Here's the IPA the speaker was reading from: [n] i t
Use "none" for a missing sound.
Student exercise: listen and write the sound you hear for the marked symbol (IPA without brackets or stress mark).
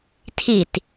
tʰ